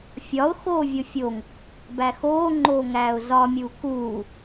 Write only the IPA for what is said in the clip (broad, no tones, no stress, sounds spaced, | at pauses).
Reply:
fʲ ɒ ʊ̯ x oː vʲ o fʲ o ŋ | b æ x oː ŋ͡ǃ oː ŋ æː ʊ̯ z ɒ mʲ uː k uː